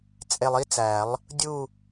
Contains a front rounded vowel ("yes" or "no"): no